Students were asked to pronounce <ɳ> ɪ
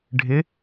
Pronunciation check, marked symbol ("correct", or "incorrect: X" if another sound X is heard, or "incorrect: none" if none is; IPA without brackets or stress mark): incorrect: ɖʱ